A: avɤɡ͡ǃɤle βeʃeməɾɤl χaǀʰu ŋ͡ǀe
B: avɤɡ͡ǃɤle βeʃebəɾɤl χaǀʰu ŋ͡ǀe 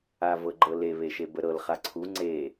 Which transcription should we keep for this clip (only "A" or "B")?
B